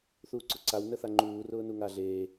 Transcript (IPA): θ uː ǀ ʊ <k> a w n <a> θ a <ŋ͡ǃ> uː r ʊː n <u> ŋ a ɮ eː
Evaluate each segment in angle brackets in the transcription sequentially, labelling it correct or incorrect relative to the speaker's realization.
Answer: incorrect, incorrect, correct, correct

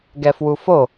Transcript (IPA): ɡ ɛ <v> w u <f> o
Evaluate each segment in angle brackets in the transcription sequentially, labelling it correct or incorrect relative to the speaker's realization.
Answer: incorrect, correct

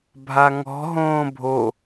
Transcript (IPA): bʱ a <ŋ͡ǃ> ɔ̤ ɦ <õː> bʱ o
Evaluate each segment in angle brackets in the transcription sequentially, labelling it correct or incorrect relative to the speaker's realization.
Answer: incorrect, correct

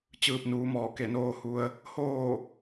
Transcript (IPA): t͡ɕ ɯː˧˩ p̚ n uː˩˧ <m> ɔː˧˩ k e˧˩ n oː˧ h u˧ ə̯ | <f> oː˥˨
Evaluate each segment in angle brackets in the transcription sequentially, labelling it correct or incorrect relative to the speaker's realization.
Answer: correct, incorrect

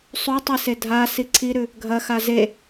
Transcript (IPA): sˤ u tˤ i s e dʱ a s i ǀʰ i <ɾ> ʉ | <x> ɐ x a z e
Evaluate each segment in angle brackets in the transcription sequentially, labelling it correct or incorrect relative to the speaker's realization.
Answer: correct, incorrect

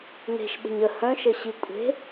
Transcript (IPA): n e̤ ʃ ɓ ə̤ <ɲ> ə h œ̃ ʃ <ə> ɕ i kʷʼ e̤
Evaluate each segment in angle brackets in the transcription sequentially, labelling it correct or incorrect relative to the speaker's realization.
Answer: correct, correct

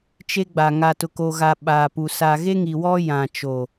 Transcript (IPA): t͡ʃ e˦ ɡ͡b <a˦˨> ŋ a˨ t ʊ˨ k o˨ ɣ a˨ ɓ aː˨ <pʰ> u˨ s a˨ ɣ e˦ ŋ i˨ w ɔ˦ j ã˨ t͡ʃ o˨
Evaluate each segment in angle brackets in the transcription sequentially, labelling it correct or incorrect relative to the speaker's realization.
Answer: incorrect, incorrect

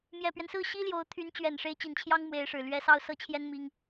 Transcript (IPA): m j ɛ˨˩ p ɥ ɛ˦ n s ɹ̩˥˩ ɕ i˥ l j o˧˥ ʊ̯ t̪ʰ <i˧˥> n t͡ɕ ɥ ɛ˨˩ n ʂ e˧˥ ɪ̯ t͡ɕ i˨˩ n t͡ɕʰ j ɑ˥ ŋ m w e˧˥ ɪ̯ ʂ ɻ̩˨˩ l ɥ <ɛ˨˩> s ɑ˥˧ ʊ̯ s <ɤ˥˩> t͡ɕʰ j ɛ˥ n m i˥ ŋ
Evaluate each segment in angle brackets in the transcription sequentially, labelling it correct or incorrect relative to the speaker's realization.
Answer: incorrect, incorrect, correct

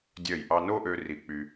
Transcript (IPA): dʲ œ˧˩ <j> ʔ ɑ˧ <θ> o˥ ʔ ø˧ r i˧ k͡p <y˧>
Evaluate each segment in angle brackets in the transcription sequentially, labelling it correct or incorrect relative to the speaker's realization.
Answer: correct, incorrect, correct

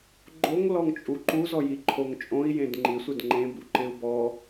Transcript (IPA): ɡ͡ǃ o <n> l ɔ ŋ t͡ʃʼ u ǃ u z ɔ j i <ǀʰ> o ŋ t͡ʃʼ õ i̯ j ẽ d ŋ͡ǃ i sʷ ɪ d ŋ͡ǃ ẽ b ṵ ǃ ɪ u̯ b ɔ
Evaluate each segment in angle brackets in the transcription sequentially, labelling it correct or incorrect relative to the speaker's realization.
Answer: incorrect, incorrect

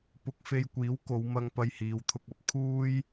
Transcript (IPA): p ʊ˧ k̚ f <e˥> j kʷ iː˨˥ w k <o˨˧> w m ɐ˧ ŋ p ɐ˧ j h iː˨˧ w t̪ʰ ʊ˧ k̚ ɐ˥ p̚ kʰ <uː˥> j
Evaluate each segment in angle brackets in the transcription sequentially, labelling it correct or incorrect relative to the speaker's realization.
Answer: incorrect, correct, correct

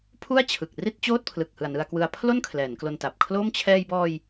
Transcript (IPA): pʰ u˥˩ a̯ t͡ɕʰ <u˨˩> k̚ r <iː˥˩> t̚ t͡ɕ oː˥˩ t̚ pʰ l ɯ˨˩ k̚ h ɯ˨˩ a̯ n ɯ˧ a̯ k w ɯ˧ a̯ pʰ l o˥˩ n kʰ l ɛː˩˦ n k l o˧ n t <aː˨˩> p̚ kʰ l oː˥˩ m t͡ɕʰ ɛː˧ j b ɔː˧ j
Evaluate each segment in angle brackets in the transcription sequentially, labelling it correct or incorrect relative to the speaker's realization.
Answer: incorrect, incorrect, incorrect

